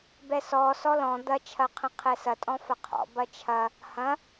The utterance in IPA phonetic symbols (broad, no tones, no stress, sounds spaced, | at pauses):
b ɛ s ɔ s ɔ l ɔ̃ d̪ ɐ t͡ʃʰ ɐ qʰ ə̃ qʰ ɛ s ɐ tʼ ɔ̃ f ɐ qʰ ɔ̰ b ɐ t͡ʃʰ ɐ | h ɐ̃